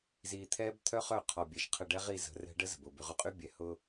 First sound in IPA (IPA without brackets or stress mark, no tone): z